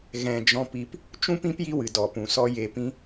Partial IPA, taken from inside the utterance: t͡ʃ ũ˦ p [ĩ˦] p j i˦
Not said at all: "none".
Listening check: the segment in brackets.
ĩ˦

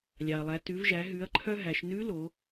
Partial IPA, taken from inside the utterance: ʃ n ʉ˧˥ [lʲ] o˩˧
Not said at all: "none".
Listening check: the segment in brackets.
l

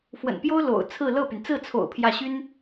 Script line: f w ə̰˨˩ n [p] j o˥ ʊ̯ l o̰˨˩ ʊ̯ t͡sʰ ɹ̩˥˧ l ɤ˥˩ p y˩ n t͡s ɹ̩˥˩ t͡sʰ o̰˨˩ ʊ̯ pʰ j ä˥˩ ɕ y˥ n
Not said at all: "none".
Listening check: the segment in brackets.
p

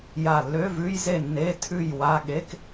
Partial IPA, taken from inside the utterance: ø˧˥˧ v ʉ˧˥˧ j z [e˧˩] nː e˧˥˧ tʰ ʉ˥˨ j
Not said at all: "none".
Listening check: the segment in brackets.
e˥˨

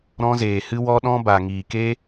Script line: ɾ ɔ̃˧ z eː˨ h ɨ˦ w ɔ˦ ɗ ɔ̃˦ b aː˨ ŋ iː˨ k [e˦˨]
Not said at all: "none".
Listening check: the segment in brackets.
e˦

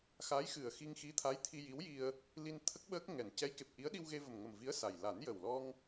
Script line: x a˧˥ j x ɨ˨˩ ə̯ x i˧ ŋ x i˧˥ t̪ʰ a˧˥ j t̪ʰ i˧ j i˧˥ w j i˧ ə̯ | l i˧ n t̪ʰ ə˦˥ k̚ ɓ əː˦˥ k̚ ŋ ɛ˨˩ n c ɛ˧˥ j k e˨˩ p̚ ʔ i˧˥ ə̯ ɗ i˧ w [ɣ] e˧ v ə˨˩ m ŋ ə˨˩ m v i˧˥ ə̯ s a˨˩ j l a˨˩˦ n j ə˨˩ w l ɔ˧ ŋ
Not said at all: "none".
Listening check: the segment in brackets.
ɣ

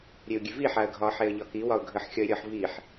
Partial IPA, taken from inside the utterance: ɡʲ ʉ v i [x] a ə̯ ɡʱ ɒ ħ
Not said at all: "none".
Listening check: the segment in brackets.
ħ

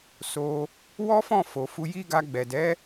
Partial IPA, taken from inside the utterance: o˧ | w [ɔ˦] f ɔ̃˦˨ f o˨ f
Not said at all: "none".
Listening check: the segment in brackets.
ɔ˦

